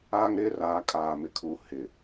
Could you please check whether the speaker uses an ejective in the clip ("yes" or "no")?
yes